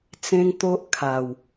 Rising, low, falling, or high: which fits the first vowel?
high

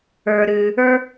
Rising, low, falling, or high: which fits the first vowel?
low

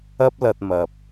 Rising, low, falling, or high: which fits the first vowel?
high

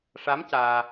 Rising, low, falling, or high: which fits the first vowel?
rising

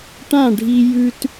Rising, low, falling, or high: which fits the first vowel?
falling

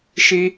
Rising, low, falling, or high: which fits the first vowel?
high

